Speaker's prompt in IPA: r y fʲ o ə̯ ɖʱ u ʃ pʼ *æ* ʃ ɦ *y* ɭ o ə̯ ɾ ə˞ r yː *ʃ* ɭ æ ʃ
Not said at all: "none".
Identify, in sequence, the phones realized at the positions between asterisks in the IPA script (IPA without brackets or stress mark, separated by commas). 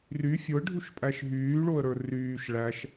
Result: æ, yː, ʃ